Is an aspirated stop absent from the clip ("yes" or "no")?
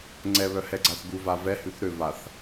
yes